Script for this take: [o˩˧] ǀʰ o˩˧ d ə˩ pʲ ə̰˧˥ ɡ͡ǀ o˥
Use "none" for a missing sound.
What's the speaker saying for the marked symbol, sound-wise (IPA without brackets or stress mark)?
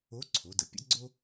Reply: o˧˥